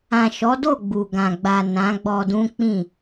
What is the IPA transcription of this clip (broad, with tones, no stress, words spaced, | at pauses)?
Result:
ã˨ʃɔ˨˦do˦˨ ɡ͡bu˨ɡã˨ ɡ͡ba˨ nã˨˦ɡ͡bɔ˧ dũ˦k͡pĩ˦˨